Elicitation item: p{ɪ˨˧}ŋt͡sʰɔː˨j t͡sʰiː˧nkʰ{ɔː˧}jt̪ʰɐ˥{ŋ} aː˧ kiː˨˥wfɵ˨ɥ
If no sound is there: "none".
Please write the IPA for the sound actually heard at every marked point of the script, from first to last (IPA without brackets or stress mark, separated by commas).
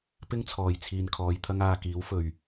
ɪ˥, ɔː˧, ŋ